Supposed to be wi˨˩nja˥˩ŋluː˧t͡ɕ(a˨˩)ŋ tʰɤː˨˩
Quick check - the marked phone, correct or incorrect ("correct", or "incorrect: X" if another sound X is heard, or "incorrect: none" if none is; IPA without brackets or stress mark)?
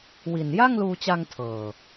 incorrect: a˧